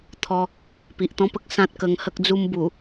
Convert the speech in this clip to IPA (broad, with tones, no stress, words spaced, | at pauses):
t̪ʰɔ˧ | pi˨ʔt̪ɔ̃˦pə˦k̚ sã˦t̚kə˧ŋhə˦k̚d͡zu˦m bu˨˩